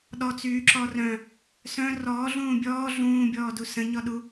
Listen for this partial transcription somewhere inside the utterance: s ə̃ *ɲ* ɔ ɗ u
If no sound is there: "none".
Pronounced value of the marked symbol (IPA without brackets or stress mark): ɲ